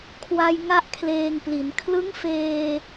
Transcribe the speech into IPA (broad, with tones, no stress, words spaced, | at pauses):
kʰwa˧j ŋa˥˩ʔkʰleː˧ŋpli˩˦n kʰlɯ˦˥ŋfeː˧